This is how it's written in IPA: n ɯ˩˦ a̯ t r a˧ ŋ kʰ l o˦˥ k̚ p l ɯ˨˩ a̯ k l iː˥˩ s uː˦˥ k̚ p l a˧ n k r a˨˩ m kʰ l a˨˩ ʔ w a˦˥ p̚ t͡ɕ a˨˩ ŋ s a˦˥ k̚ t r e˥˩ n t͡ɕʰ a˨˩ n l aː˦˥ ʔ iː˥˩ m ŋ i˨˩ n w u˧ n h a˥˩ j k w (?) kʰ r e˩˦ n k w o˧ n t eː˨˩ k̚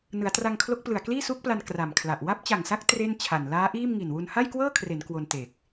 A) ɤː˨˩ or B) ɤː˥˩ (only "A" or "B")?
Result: B